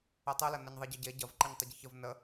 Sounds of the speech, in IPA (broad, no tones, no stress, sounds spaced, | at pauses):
e tˤ ɯ l ɐ n ɐ ɲ ðˤ e ɟ ə ɟ e ɟ ɐ v ǃ ɯ ɲ tˤ ə ɟ i ç ə v n ə